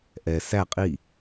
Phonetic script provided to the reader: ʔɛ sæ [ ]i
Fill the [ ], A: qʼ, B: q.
A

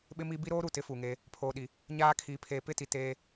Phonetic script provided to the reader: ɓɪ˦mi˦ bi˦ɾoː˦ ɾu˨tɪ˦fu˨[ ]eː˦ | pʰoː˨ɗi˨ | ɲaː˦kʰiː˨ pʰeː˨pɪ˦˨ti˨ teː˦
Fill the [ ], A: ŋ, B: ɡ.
A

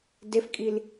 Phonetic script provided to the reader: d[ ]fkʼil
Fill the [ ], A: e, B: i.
A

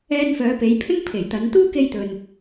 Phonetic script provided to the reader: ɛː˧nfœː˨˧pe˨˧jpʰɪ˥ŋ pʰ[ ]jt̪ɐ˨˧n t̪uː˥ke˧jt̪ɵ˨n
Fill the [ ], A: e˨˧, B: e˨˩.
B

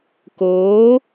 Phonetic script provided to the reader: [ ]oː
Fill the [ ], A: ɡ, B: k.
B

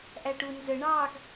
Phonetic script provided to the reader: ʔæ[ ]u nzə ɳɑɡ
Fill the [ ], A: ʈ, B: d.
A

